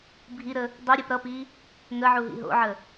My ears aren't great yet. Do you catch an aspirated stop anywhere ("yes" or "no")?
no